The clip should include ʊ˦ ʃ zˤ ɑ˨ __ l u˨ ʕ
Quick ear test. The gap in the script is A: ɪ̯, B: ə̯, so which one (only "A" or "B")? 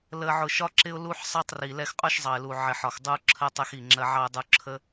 A